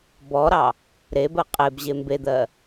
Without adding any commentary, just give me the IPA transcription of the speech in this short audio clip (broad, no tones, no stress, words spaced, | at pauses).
bɔɾɑ | ɾebɜ qʼebʑe mbed̪ɜ